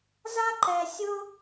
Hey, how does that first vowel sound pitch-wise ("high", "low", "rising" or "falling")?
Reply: high